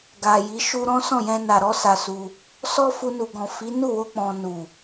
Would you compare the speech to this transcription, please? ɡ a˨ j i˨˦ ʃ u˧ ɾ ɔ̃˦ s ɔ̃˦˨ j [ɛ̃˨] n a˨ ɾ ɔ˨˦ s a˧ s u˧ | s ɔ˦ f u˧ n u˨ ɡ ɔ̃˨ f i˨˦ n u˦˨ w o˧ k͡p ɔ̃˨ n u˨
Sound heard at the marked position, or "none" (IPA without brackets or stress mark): ɛ̃˧